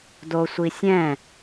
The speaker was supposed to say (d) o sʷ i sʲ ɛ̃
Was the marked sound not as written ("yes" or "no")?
no